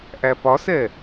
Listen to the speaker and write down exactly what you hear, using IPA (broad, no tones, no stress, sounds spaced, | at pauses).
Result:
ʔ æ p ɒ s ɛ